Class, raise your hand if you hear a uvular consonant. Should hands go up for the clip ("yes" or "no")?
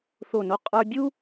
yes